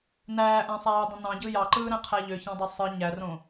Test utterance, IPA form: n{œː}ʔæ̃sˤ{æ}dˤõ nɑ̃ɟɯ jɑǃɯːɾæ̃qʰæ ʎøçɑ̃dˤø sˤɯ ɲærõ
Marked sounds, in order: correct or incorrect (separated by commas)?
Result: incorrect, incorrect